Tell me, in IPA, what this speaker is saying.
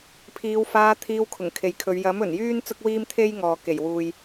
pʰ iː˨˧ w f aː˧ t̪ʰ iː˧ w kʰ ʊ˨˩ ŋ kʰ e˨ j kʰ ɵ˨˧ ɥ j ɐ˨˥ m ɵ˨˩ n j yː˥ n t͡s ʊ˥ k̚ w iː˥ m t̪ʰ e˥ j ŋ ɔː˨ k e˨˩ j w uː˨ j

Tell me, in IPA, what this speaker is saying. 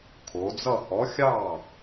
kʰ o˩˧ d͡z ʌ˥˧ h ɔ˨˥ xʲ ɑ˥˩

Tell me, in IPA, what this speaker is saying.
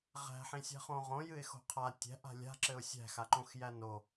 ʁ æ̤ ħ ĩ sʲ æ̤ χ õ ʁ õ j ɨ ɪ̯ x o̤ qʰ a tʲ æ̤ ʔ a̤ lʲ a̤ ǁ ɘ ʊ̯ sʲ æ̤ x a ǃ õ x j æ n o

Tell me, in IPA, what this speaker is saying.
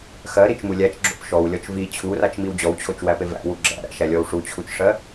x ɜ ɾ i t͡ʃ m u lʲ æ t͡ʃ ɡ͡ǁ o̰ p ʃ ɔ w lʲ ɔ t͡ʃ v i t͡ɕʰ u r a t͡ʃ m i w d͡ʑ ɔ w t͡ɕʰ o t͡ʃ w æ p e v æ̰ w u ɡ͡ǁ æ̰ ɾ æ̰ ʃ æ lʲ ɔ w ʂ u t͡ɕʰ u t͡ʃ ʂ ɜ

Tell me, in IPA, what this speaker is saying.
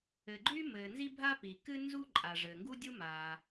ɘ˩ ɡ͡ǃ y˥ m ɘː˩ n z i˥ bʱ a˥ p i˩ k ɨ˥ n z u˥ ǃʼ a˩ ʐ ɘː˩ ŋ ɡ u˥ dʲ u˥ m a˩

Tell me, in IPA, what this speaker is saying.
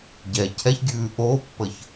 ɟ ɛ cʰ ɛ ç ɡʲ ʉː ʔ oː pː ə ç

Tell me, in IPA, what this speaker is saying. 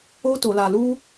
o˦ t o˧ l a˧ l u˦

